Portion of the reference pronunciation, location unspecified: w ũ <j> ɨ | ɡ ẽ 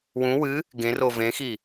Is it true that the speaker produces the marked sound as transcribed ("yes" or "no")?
no